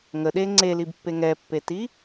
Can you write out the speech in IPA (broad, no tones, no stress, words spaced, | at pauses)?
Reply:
ŋəɗe ŋ͡ǀelibpːe ŋɛpːeti